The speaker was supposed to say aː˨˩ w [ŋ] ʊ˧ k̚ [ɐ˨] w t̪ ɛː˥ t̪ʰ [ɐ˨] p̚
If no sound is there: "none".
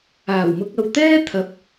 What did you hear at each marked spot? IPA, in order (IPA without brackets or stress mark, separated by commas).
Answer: m, ɐ˨, ɐ˨